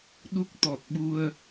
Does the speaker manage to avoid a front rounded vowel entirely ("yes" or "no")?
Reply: yes